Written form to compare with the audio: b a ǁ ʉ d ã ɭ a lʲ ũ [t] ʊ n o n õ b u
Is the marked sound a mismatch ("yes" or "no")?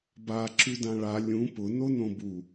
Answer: yes